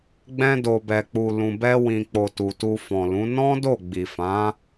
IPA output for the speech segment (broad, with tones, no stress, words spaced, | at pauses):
ɡ͡bɛ̃˧do˨bɛ˨ k͡pu˨lũ˨bɛ˧ wĩ˨k͡po˨ tu˨tu˧fɔ̃˨lũ˨˦ nɔ̃˦do˦˨ ɡ͡bi˨fã˨˦